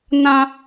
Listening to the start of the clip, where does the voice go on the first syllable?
high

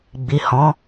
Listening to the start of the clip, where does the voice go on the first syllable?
low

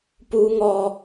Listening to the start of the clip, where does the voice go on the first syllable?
high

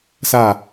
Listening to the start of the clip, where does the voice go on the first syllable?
falling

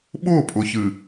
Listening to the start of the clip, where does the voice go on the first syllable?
falling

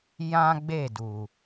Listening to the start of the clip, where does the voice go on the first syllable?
high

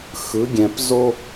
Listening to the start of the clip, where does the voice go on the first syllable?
rising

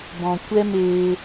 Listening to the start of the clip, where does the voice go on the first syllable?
low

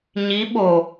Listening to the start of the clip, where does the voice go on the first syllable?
rising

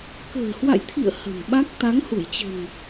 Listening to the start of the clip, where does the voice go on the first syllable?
low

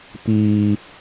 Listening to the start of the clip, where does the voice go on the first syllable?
high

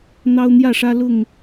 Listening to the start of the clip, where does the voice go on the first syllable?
high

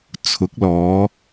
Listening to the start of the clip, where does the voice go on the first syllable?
rising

